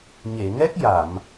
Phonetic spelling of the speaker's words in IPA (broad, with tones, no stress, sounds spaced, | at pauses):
ɲ e˨˩˨ ŋ ɛ˦˥ k̚ j a˨˩˨ m